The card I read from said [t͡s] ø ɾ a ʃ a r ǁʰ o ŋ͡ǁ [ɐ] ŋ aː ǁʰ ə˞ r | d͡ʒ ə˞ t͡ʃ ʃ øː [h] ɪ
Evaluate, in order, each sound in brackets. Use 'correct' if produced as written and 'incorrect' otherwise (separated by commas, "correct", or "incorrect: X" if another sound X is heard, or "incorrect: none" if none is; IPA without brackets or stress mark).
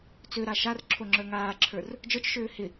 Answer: correct, incorrect: ə˞, correct